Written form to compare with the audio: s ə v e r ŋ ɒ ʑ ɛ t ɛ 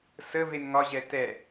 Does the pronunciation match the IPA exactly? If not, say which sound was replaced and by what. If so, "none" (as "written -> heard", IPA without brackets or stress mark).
r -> n